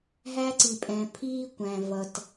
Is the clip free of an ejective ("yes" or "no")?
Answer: no